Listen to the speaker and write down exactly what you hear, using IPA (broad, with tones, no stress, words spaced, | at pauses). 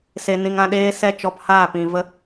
se˧nĩ˧ŋã˦ ɗeː˦sɛ˦ t͡ʃɔ˧phaː˦˨pĩ˨ və˦